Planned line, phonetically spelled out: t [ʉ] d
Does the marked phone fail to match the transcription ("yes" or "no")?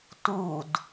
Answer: yes